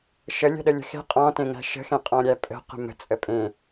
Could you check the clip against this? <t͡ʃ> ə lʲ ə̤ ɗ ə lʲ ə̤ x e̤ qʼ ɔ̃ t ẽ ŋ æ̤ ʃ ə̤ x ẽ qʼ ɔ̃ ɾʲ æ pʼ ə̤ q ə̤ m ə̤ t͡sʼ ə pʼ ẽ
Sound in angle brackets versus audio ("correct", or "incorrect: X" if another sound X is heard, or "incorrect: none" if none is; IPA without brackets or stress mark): incorrect: ʃ